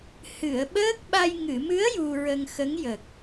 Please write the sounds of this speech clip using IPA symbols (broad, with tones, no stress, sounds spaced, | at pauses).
h ɨ˨˩˨ ə̯ ɓ əː˦˥ k̚ ɓ a˧ j ŋ ɨ˨˩˨ m ɨ˧˥ ə̯ j u˧ ɹ ə˧ ŋ x ə˧˥ ŋ j ə˨˩ k̚